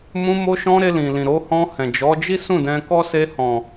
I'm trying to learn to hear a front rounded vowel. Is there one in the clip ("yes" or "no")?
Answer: no